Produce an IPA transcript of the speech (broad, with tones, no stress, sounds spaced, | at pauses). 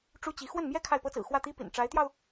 ʈ͡ʂ u˥ t͡ɕ i˧˥ x w ə˥˩ n m j ɛ˥ kʰ a˥˩ ɪ̯ p ɤ˥ t͡s ɹ̩˨˩ x w ä˥˩ t̪ i˥ p ḭ˨˩ n ʈ͡ʂ a˧˥ ɪ̯ t̪ j ɑ˧ ʊ̯